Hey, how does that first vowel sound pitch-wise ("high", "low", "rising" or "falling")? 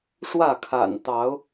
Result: falling